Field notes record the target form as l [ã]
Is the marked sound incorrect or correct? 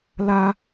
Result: incorrect: a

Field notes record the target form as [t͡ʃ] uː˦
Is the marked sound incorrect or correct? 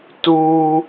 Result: incorrect: t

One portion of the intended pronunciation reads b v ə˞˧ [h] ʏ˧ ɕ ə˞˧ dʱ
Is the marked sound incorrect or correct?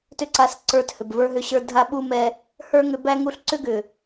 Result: incorrect: ɦ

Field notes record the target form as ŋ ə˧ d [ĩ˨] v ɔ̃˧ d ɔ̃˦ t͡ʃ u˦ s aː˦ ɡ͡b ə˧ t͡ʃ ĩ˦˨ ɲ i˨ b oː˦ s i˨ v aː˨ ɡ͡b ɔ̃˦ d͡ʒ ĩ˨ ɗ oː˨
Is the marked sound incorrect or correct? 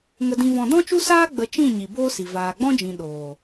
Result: incorrect: ĩ˧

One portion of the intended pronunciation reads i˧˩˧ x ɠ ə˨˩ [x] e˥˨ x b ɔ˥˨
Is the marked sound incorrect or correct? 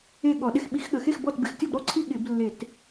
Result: correct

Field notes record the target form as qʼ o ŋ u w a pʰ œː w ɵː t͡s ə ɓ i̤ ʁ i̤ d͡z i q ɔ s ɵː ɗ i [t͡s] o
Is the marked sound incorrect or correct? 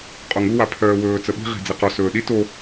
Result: incorrect: t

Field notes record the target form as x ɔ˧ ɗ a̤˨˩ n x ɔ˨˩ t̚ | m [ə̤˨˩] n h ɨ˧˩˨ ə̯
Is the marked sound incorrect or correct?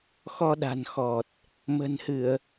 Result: correct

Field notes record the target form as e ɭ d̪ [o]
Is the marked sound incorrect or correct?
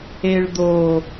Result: correct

